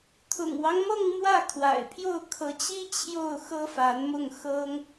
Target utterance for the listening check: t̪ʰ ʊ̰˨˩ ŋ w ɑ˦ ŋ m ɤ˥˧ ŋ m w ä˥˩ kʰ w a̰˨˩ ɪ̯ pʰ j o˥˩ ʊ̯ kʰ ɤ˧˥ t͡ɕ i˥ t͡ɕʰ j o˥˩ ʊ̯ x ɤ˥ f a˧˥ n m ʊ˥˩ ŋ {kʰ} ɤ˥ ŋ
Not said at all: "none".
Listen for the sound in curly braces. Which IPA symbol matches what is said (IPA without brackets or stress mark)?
x